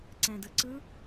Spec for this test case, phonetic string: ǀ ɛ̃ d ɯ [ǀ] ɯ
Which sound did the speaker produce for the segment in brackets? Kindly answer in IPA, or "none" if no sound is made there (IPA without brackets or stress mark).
ǀ